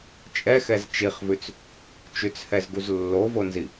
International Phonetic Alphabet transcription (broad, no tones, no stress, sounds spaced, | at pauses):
t͡ʃʼ ɛ x ɛ z t͡ʃ i χ v ʉ t͡s | t͡ʃ ʉ t͡s h ɛ z ɡ u z lː o v o n z i